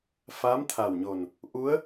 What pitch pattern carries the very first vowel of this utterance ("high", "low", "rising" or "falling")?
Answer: rising